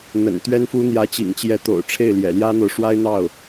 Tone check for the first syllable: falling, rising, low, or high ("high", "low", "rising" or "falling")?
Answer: low